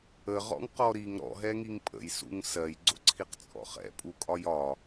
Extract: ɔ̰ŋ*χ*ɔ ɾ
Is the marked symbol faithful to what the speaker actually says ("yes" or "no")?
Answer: no